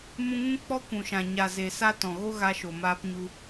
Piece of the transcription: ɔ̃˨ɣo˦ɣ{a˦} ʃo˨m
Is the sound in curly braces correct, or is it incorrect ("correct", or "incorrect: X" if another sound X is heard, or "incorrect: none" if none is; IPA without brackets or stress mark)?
incorrect: a˧